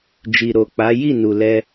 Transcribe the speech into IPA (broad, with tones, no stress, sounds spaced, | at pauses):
d͡ʒ i˨ ɾ o˨ k͡p a˨˦ j i˦˨ n u˨ l ɛ˧